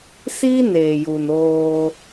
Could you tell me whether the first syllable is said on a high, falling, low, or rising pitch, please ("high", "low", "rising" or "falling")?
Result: high